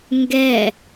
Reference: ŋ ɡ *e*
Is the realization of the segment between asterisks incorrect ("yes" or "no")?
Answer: yes